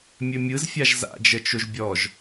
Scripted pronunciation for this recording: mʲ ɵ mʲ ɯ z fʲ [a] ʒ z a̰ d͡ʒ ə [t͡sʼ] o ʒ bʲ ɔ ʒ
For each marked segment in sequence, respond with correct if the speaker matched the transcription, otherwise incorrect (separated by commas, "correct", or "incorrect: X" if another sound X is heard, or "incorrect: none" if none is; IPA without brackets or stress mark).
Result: correct, incorrect: t͡ʃ